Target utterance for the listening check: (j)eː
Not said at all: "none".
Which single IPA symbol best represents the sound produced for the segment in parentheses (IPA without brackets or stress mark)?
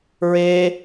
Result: ɹ